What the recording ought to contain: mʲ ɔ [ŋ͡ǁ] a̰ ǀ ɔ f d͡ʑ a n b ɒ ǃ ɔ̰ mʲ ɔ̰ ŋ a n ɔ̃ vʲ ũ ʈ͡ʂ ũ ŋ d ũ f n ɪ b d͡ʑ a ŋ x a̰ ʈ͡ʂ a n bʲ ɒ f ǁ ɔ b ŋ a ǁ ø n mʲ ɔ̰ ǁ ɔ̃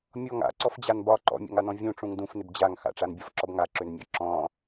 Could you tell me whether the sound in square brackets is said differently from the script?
yes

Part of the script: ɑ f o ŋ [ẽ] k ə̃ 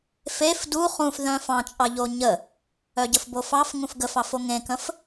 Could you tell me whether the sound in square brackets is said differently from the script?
no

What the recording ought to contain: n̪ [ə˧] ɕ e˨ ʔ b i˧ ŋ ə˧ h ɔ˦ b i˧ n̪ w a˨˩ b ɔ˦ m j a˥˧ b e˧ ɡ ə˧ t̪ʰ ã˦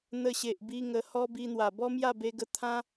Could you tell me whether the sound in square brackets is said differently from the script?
no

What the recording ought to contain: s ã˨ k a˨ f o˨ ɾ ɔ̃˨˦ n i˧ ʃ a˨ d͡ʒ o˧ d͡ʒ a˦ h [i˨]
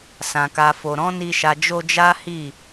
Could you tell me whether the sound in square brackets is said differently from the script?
yes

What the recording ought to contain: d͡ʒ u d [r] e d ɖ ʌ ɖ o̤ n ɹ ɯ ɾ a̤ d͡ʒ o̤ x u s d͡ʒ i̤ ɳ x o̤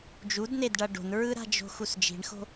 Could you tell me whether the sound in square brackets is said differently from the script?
yes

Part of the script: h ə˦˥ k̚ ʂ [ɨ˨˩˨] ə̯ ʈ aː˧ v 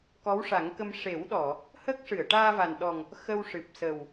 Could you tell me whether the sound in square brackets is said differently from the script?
no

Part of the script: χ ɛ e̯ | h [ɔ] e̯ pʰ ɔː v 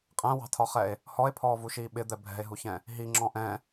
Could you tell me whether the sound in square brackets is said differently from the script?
no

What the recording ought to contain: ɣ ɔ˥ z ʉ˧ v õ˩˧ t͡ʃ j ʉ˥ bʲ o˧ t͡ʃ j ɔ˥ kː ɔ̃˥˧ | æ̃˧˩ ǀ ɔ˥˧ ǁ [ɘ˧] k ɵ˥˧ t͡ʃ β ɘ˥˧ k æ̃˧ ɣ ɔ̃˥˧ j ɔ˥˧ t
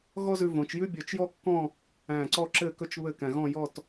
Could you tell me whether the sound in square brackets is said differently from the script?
yes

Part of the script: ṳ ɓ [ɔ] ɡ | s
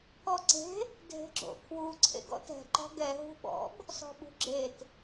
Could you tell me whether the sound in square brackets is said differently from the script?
yes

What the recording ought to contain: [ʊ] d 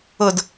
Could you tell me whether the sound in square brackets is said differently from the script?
no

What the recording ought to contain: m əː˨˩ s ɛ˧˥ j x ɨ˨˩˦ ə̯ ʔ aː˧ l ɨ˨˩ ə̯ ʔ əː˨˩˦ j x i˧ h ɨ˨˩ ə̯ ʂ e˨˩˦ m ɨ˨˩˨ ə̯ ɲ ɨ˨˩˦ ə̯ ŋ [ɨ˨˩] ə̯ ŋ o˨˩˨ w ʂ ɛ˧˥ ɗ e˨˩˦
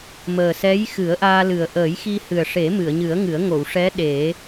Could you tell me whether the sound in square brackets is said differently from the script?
yes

